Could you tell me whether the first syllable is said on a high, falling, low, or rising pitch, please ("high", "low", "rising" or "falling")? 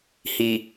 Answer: low